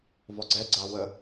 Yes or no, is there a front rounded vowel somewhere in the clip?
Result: no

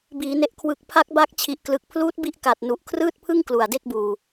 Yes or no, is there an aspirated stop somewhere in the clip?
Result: yes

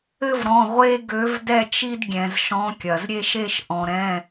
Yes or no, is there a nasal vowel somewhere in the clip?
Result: yes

